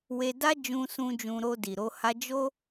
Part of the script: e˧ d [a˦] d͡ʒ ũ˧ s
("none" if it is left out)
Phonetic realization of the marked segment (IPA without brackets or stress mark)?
a˦